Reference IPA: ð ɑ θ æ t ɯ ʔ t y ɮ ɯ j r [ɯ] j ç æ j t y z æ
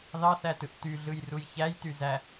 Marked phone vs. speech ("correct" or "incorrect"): incorrect